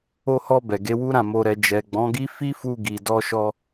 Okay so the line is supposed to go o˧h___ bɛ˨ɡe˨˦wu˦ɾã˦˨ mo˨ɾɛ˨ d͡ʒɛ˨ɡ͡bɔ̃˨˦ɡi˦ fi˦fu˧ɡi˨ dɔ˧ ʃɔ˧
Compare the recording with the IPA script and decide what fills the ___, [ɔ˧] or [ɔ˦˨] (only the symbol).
ɔ˧